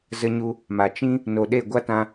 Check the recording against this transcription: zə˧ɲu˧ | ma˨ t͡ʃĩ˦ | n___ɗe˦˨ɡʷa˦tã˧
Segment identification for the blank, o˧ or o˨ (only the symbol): o˨